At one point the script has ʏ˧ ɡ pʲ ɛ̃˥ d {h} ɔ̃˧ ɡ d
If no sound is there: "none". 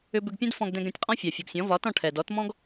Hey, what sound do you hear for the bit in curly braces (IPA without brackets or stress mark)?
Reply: f